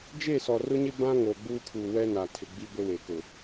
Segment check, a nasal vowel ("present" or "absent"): present